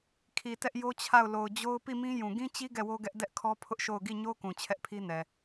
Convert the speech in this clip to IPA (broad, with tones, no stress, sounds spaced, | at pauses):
kʰ i˨ t ɛ˦ ʔ j o˦ t͡ɕʰ a˦˨ ʊ̯ l o˨ ʊ̯ d͡ʑ o˦ ʊ̯ p i˦˨ m ĩ˦ j ũ˨ ɡ ĩ˦ t͡ɕ i˦ ɡ ɛ˦˨ w o˦ ɡ ɛ˦ ʔ d ɛ˦ ʔ kʰ ɔ˦ pʰ ʊ˦ ʔ ʃ o˦˨ ʊ̯ ɡ i˦˨ ɲ o˦ k ũ˨ t͡ɕʰ ɛ˦ ʔ pʰ i˦ n ɛ˨